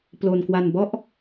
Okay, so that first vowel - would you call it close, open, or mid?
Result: mid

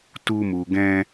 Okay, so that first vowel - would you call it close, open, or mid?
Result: close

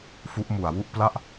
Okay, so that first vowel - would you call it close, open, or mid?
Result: close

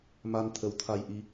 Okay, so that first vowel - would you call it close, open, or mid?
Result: open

